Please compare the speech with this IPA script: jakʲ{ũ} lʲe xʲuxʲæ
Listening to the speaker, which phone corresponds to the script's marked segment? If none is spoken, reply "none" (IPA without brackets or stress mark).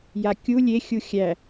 u